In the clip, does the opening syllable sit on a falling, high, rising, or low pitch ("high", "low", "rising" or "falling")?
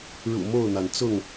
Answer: low